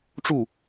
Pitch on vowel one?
falling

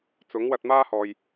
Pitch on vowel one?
rising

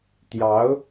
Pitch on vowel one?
rising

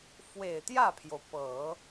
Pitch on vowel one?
low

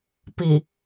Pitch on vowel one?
low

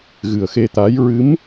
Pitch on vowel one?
low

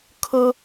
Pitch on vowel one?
high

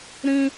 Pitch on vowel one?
high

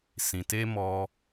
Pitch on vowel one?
low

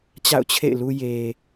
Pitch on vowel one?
falling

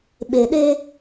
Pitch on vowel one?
low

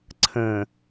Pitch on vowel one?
low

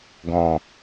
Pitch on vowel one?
low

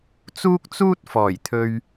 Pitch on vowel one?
high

